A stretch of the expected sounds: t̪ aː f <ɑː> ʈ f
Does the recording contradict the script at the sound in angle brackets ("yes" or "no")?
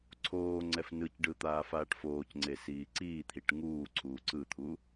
yes